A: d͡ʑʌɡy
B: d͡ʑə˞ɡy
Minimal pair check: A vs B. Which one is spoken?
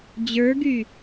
B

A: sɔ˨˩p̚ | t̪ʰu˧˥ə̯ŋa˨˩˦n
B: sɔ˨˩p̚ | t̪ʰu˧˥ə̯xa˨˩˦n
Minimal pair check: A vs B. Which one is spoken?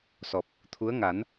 A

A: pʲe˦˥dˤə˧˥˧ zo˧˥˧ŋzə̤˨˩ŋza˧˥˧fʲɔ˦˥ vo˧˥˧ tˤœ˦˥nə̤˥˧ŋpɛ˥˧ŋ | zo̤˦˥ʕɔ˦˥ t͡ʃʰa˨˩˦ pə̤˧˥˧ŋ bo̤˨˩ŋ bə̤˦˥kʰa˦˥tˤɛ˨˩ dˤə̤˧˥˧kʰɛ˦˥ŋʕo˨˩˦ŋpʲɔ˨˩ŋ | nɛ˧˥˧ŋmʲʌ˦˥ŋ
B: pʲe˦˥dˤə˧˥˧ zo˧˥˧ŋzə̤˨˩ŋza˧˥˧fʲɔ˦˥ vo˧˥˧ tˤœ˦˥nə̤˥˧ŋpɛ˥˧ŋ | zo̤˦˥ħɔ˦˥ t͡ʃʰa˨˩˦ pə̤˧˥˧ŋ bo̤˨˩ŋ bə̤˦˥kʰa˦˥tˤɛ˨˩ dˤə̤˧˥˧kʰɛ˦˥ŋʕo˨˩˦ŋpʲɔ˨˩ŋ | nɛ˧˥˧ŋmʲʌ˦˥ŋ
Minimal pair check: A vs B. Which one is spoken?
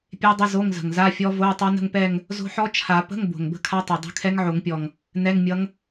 B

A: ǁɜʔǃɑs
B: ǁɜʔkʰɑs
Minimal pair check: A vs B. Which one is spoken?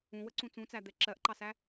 A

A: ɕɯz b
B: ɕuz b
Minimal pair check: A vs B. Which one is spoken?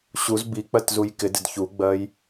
B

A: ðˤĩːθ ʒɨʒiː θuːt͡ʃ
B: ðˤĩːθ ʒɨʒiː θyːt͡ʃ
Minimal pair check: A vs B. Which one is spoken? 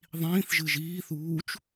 A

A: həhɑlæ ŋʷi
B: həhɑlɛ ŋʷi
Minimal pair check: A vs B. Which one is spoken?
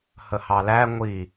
A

